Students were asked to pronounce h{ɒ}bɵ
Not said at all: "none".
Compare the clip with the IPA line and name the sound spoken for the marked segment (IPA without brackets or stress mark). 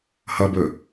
ʌ